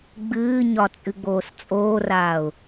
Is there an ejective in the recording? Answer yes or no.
yes